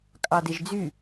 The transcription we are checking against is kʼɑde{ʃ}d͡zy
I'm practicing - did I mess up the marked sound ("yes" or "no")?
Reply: yes